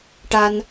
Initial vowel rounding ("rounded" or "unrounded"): unrounded